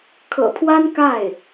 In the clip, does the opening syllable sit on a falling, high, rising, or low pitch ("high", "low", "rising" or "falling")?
low